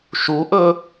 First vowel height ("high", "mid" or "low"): high